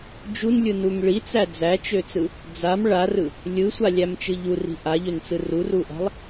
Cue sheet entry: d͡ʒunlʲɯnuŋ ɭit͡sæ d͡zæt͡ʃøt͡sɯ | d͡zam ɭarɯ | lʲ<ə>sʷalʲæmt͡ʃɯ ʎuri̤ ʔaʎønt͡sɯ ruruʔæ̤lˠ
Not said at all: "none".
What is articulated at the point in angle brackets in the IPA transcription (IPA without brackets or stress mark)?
ɯ